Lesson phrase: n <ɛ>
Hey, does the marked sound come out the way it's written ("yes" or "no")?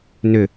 no